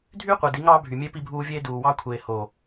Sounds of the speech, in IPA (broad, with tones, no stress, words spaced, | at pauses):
dʱyː˦qʷe˨di˨˦ ŋɑː˦bʱy˨mʲe˦ pi˦bʱuː˦vʲeː˦ duː˨wɑ˦kʷʰeː˨ hoː˨